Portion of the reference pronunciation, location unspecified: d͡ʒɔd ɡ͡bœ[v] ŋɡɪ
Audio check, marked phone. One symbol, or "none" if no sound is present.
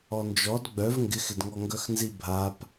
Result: v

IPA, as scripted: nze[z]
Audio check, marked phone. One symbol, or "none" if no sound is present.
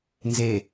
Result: none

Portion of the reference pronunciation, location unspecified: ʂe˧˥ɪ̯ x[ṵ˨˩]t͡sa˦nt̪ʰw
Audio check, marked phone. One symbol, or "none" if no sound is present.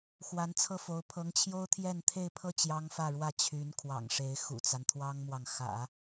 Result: ṵ˨˩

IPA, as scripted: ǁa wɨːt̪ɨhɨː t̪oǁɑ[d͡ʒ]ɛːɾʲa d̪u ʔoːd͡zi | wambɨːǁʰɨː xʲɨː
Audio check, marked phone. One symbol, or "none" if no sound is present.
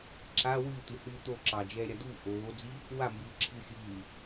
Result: d͡ʒ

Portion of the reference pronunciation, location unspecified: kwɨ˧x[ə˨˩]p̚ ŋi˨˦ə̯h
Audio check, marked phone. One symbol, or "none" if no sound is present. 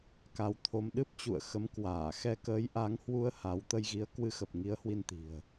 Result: ə˨˩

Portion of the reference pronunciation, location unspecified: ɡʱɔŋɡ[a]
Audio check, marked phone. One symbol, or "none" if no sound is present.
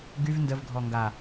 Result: a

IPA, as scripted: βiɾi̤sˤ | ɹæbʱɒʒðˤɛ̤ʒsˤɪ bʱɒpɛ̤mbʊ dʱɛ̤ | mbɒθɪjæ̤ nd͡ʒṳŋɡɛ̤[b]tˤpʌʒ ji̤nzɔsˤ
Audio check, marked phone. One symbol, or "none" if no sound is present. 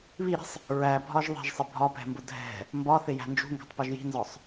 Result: none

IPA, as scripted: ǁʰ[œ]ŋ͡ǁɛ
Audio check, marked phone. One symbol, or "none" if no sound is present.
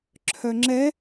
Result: œ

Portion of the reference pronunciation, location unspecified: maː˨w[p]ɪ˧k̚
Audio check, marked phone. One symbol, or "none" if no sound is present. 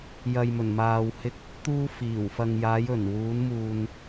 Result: h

